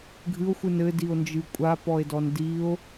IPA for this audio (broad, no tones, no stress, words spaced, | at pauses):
ɡʱɨo̯xʷɨn ɘdio̯nd͡ʒɨ kʷʼapɔe̯dɔn dio̯